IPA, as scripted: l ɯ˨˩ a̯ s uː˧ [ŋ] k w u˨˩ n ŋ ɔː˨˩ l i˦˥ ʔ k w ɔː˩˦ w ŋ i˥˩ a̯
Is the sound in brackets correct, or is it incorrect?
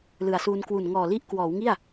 incorrect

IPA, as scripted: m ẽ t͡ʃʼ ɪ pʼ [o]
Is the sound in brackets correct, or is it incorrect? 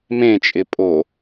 correct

